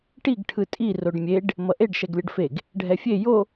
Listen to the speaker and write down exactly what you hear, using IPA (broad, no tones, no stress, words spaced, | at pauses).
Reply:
ʈiɡ ʈʰɯtʼi roɖmʲeɖ | mʌʔeɖ ʃɛɡlʲʌɖfeɡ | ɖʱɛfʲe jo